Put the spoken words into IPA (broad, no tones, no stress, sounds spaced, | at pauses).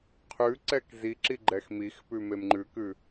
qʰ ʉ ǀ ɛ k z i ǁ i ɡ͡ǃ ɛ x m i x p ʉ m e m ŋ͡ǃ ʉ k ʉ